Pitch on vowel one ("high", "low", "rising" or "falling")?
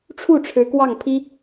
falling